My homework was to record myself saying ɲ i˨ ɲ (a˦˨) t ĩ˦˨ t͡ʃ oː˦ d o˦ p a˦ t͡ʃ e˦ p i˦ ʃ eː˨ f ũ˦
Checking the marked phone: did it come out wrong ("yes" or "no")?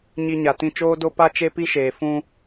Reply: yes